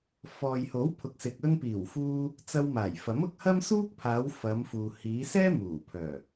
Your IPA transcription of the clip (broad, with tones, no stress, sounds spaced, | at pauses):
f ɔː˨ j h o˨˥ w pʰ ʊ˨ k̚ s ɪ˨ k̚ ɵ˧ n p iː˨˩ w f uː˧ | t͡s ɐ˧ w m aː˨˩ j f ɐ˨˥ m ʊ˧ k̚ h ɐ˥ m s uː˥ k̚ pʰ aː˨˧ w f ɐ˨˧ m f uː˨ h iː˨˧ s ɛː˥ m uː˨˩ pʰ œː˨˩